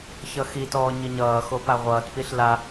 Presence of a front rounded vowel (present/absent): absent